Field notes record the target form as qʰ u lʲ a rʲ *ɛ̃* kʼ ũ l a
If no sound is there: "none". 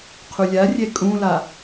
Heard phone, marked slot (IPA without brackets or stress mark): ɛ